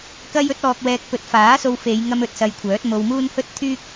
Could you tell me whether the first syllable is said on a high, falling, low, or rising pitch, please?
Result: high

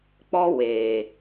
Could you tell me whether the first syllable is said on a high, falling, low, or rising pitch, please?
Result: high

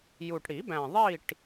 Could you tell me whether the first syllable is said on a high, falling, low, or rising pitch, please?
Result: low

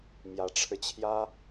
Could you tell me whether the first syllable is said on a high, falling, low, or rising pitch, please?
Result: rising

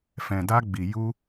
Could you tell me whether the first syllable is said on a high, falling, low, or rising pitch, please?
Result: low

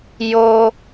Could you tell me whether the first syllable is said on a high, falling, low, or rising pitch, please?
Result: high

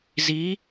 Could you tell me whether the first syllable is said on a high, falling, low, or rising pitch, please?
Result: rising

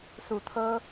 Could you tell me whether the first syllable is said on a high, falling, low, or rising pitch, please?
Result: low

